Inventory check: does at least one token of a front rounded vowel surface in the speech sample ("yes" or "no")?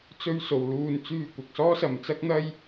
yes